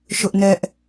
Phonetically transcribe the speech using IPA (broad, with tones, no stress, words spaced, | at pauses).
ʃʊ˦ʔnɛ˦ʔ